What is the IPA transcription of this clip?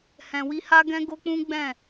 hɛ̃˧wi˦ ha˦ɡɛ̃˦ɡo˦k͡pũ˦ ɡ͡bɛ̃˦˨

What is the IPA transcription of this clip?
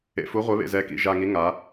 ḛ˨fu˨˦ʁʷe˨˦βḛ˨ zɛ˨˦kḭ˨ʒa˨ ŋi˨˦ŋa˨˦

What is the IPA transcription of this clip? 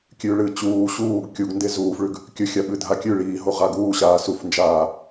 kʲʉ ɭɨ t͡ɕuː ɕuːɡ kʲuɡnde zuːfɭʉɡ | kʲɵxʲaɓɨ dʱakʲʉ ɭiːɦo ʁaɡuːɕaː sufnd͡ʒaː

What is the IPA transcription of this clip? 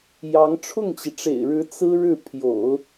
jɑ˧˥ŋ ʈ͡ʂʰʊ˥˩ŋt͡ɕi˩ʈ͡ʂḛ˨˩ɪ̯ɻɻ̩˧˥ t͡sɹ̩˥ ɻɻ̩˥˩pʰjo̰˨˩˦ʊ̯

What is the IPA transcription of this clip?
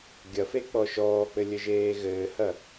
ɡʲɐfe k͡pɔʃɔːk͡pɘ lʲɘʒeːɣɘːhɐ

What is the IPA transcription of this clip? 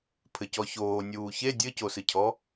pʰɘcɔçoː nʲuːçe dʲɘcosɨcʰɔ

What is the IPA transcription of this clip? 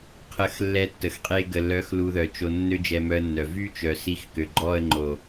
qʰə˧xlːɛ˧tːə˨xqʼe˧ ɡə˨lœ˨˦x lu˧ðœ˨t͡ʃo˧ nːø˦d͡ʒɛ˧mœ˧ə̯nːœ˨ vy˦ t͡ʃœ˨si˦˨xkø˨ ɡ͡ǃɔ˦˨ə̯ŋ͡ǃo˨

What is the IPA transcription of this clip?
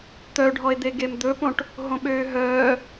t̪œɖʱɔe̯d̪eɡem d̪ɵpõʈ | ɦõɓøːɦœː

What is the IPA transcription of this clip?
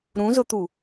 ɾũzʊt̪u

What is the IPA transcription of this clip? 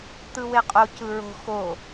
t̪ɯweqʼo cɯɹo̤ xo

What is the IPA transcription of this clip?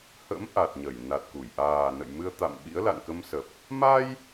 hə̰˧˥m ʔa˨˩t̚ɲə˧˩j na˨˩t̚ku˧˩j ʔaː˨˩ nə̰˧˨jmɨ˧ə̯ t̪a̰˧˨mɓḭ˧˥ə̯la̰˧˨n kə˧msə˨˩p̚ | ma˧j

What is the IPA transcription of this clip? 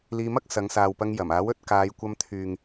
liː˧mɐ˥k̚ sɐ˨˧ŋsaː˨wpɐ˧ŋ jɐ˨˩maː˨˥wɵ˧t̚ kaː˨˧jkʷɐ˧mt̪ʰyː˨ŋ

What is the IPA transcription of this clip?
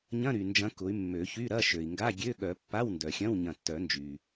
ɲɐ̃˧˥˧ɾy˩nd͡ʒɐ̃˨˦ kʊ˨˦y̯mːø˨˩˦çy˧˥˧ɾɐ˧˥˧ ʃø˩i̯ŋɡa˧˥˧ ɡʲø˧˥˧ɠœ˨˩˦ pːa˧˥˧wndœ˩xʲɐ̃˧˥˧w ɲɐ̃˧˩tːœ˨˩˦nd͡ʒy˩

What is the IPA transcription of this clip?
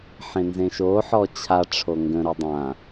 ħẽnzẽʃoħɔ t͡ɕʰaʈ͡ʂʰo ŋɡə̃ɾu dˤã

